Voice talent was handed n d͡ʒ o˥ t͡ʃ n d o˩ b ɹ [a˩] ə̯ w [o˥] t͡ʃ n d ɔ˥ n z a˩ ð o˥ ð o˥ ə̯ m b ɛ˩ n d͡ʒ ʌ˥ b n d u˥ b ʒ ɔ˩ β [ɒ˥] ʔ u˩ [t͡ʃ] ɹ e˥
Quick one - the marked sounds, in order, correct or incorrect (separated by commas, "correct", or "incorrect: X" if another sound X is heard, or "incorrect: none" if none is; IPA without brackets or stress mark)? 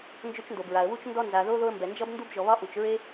correct, incorrect: u˥, correct, correct